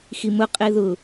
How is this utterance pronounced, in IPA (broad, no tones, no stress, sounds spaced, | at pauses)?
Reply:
x i m ʊ qʼ e ð ʊ